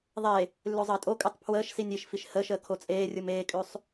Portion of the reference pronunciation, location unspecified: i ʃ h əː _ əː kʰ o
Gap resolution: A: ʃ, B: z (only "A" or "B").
A